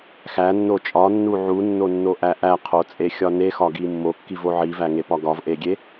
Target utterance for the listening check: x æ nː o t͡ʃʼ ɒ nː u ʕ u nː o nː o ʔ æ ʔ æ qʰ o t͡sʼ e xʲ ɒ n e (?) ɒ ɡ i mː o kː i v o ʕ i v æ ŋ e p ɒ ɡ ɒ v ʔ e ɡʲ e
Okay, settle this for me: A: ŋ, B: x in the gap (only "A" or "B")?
B